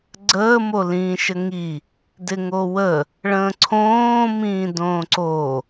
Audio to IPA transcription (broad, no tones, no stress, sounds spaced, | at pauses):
ɡ͡ǀ əː m o l ĩː ʃ ə ŋ i | d ɪ ŋ o w ə | ɭ ə̃ː ǀʰ õː m ĩː d õː ǀ o